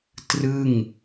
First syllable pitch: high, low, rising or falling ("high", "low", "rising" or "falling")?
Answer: falling